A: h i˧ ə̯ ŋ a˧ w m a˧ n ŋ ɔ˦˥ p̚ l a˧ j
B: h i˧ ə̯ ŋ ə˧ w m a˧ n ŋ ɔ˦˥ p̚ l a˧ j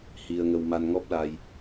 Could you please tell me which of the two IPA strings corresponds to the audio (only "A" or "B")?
B